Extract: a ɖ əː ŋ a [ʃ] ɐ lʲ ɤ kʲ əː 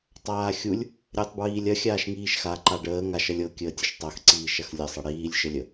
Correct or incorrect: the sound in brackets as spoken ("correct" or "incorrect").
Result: correct